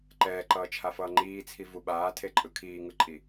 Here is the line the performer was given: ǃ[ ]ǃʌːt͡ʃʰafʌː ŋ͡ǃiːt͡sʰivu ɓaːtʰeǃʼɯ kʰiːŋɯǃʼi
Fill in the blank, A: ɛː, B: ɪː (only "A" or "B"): A